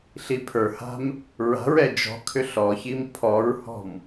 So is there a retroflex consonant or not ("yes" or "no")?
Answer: no